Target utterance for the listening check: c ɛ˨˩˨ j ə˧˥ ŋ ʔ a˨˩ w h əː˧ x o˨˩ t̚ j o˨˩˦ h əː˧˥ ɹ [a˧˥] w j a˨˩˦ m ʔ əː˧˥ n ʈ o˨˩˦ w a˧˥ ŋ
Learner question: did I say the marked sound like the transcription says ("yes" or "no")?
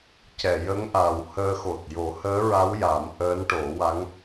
yes